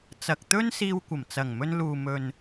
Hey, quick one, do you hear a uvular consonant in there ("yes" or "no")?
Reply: no